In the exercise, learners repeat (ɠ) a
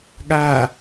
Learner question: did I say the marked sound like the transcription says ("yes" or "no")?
yes